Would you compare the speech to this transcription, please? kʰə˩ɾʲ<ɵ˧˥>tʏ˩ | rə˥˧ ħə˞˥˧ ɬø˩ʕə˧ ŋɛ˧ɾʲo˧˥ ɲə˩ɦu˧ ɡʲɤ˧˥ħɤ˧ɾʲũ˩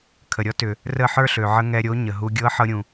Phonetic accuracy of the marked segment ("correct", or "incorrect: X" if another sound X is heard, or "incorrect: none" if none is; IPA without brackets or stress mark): incorrect: ɔ˧˥